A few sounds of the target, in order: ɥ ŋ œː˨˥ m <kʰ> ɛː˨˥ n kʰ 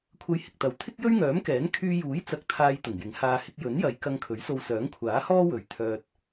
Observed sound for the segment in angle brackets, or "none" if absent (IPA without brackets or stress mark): k